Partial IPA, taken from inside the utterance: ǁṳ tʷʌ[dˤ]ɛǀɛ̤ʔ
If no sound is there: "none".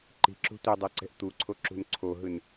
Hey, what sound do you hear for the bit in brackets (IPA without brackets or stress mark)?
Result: dˤ